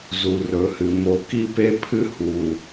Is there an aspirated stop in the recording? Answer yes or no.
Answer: yes